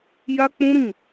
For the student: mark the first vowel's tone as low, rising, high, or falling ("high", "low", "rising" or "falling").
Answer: high